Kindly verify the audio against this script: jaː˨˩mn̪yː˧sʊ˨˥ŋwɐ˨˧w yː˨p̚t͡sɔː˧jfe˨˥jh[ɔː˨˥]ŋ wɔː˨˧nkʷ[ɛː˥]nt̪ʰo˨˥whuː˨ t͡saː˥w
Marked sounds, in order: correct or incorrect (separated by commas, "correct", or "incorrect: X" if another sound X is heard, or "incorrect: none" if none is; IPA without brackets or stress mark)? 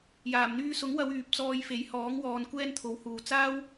correct, correct